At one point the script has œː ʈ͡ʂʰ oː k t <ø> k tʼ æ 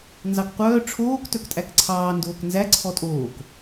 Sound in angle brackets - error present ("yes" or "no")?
yes